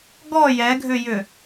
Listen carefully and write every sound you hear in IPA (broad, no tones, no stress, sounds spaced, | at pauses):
ɡ ɔ j ɛ ɡʱ ʏ j ʏ